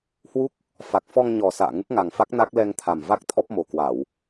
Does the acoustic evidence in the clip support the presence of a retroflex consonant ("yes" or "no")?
no